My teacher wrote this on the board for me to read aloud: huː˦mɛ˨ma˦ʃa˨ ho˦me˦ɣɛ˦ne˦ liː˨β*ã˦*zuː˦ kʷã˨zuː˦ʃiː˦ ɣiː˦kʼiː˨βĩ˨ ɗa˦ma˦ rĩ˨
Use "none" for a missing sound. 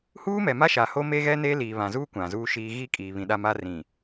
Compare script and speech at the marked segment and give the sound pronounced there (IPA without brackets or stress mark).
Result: ã˨